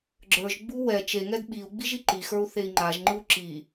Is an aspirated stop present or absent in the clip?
absent